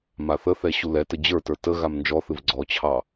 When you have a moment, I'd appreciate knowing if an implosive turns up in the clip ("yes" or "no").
no